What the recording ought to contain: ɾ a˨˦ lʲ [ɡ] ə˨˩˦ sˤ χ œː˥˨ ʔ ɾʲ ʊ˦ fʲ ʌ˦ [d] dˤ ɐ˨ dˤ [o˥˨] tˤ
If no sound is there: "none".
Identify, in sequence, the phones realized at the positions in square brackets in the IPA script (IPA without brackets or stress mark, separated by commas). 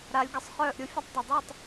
ɡ, tˤ, o˥˨